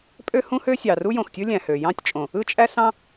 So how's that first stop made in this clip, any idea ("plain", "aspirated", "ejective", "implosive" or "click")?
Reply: ejective